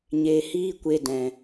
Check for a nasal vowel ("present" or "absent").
present